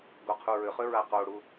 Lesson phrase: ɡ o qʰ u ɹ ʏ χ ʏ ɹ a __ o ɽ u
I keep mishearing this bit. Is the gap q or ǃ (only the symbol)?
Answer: q